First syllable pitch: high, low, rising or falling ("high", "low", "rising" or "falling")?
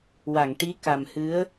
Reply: low